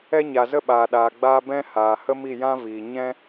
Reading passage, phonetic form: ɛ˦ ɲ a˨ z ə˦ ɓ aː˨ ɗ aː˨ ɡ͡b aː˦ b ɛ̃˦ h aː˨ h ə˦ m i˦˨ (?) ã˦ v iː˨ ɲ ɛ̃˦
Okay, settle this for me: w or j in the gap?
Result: j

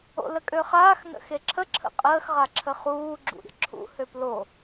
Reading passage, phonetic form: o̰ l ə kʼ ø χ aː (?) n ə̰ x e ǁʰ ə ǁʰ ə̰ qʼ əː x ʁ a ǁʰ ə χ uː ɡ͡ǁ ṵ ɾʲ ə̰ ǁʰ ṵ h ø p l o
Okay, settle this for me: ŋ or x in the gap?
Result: x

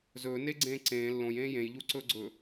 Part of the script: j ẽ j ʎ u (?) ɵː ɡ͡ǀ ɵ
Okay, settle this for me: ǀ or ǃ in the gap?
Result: ǀ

